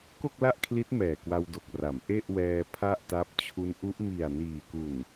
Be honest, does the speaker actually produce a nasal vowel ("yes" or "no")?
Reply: no